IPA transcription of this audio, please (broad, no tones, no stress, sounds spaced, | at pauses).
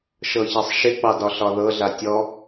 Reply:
ʃ ɤ ç a sˤ ʃ ɪ k͡p ɑ d ɒ ɬ ɒ ð ɤ ɮ a tʲ ɔ